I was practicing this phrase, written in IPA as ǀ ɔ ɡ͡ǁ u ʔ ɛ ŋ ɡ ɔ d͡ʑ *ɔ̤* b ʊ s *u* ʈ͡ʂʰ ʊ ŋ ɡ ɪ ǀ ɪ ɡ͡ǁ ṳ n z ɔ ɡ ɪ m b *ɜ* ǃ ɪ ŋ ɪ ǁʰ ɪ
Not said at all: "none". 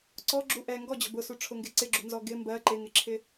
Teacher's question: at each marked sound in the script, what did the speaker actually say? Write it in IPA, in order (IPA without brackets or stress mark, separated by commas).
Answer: ɔ̤, u, ɜ